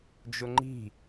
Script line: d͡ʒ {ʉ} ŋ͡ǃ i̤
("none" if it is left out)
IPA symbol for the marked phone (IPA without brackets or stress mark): ʊ